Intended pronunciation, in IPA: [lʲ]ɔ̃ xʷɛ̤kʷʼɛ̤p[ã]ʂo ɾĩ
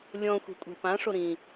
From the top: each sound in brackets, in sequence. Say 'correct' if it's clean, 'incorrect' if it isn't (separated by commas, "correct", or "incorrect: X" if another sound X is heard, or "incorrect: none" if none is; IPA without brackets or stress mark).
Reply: correct, correct